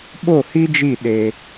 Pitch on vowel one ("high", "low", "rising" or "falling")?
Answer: falling